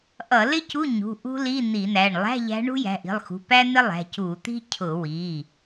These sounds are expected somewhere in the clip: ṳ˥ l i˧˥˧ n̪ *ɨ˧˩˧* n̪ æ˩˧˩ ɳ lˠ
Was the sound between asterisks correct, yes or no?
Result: no